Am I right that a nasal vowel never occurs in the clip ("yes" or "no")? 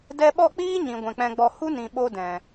no